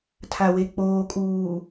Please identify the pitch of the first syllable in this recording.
low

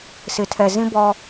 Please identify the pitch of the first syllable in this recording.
low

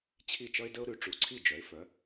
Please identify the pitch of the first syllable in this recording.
falling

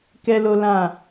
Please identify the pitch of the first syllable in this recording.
high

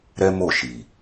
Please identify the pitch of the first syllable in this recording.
high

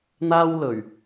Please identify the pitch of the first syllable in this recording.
high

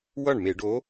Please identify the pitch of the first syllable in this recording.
falling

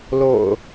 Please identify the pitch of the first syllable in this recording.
low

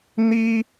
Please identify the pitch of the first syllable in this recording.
high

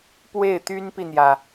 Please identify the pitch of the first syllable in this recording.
falling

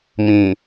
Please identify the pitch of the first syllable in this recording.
low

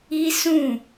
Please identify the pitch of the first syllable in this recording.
high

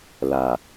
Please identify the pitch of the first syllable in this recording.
low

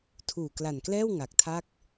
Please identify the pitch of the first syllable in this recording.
low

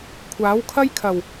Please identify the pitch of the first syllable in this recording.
rising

